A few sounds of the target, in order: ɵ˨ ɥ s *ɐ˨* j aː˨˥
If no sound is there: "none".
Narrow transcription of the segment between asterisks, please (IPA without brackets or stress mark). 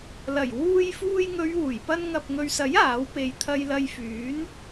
ɐ˨˥